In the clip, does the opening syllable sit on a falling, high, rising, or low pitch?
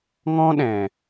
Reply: high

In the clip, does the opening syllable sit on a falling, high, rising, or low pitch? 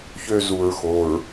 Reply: high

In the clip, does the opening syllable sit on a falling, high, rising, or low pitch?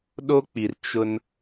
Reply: high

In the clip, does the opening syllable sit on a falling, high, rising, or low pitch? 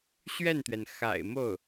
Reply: falling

